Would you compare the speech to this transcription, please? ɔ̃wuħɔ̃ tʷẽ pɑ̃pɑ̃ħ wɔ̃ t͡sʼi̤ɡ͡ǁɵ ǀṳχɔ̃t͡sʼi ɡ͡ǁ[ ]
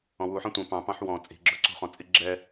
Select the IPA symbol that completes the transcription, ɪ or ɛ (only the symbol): ɛ